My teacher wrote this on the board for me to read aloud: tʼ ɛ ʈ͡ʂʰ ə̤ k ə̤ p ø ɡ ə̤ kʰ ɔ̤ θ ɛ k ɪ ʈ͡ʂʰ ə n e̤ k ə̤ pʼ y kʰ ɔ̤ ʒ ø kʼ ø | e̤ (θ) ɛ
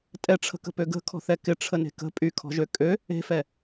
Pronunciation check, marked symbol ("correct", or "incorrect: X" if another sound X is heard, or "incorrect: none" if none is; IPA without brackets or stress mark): incorrect: f